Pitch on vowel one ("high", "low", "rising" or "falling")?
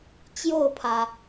falling